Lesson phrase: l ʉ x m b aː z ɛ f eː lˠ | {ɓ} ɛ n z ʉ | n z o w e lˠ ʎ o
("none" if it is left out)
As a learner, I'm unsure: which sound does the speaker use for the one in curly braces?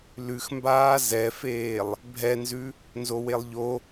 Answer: bʱ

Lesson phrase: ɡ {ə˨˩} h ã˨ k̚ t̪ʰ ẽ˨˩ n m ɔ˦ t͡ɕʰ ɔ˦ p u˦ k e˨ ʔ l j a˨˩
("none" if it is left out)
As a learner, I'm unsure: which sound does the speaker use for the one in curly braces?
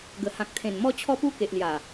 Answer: ə˨˩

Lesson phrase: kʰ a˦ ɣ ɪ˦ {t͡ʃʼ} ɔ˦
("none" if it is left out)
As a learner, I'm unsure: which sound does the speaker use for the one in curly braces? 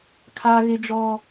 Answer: d͡ʒ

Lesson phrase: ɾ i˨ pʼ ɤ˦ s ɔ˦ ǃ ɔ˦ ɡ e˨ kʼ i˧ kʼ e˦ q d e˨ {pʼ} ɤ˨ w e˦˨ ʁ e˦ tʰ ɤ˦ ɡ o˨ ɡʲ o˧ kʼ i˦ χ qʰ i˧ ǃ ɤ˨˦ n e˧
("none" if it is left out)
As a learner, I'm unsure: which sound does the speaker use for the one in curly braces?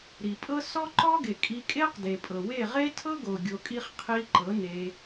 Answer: pʼ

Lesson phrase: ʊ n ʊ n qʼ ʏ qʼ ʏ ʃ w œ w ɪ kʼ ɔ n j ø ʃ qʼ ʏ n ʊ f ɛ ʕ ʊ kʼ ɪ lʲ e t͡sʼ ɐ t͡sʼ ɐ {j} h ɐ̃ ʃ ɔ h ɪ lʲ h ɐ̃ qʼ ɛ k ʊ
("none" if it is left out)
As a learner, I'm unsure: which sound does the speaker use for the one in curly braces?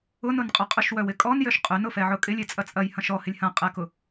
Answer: j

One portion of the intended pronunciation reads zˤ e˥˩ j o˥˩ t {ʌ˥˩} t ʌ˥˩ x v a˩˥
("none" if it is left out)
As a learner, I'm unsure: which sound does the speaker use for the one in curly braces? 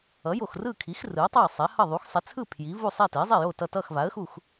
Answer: ʌ˥˩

